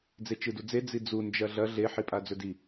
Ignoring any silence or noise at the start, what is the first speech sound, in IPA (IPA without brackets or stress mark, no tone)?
d͡z